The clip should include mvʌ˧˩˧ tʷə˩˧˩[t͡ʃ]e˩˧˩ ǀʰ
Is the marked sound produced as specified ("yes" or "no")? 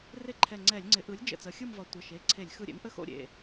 no